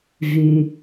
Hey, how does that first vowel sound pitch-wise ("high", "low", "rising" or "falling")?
low